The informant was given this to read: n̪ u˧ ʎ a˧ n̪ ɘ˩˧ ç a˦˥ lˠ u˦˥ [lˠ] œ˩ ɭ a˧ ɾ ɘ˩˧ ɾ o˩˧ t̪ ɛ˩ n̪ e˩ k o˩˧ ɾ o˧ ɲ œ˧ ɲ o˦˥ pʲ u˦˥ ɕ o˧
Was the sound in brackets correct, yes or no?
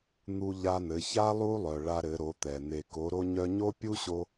yes